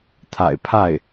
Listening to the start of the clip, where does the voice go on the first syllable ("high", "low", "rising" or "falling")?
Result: low